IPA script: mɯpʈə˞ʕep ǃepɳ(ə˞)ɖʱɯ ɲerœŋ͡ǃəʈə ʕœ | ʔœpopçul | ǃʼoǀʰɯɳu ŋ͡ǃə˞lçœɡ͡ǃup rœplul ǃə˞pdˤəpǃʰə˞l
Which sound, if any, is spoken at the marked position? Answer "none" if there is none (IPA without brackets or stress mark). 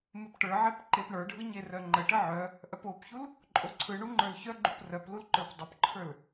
ə˞